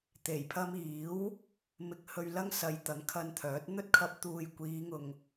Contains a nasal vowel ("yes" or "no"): no